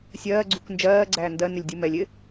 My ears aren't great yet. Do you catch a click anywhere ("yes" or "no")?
yes